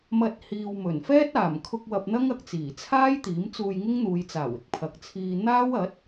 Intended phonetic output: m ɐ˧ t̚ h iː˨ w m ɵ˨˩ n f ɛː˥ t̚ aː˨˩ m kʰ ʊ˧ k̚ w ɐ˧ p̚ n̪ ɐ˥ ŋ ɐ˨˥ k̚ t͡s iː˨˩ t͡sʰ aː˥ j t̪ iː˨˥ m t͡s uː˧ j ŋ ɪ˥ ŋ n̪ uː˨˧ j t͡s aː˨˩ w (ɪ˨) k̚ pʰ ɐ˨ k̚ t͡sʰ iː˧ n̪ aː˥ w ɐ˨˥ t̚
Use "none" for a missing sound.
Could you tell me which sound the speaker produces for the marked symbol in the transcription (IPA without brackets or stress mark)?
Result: ɪ˨